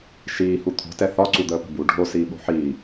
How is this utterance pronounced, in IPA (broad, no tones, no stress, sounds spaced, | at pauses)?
ʃ iː h u t̪ʰ o̤ t ɛ θ ɒ ǀ u d̪ əː p ə̤ b u ɖʱ o s iː ɓ o̤ ħ iː